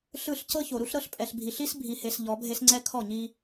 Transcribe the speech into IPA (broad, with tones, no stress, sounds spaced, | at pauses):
ɬ ɯ˦˨ ɬ c ɤ˦ ç o˨ ɾ u˦ ɬ ɾ ɤ˦ ɬ pʼ ɛ˨ ɬ bʱ i˨ ɬ i˦ s bʱ i˨ h e˨ s ʎ ɔ˨˦ bʱ e˦ s ŋ͡ǀ ɛ˦ kʰ ɔ˦˨ ɲ i˦